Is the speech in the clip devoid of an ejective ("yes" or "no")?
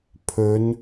yes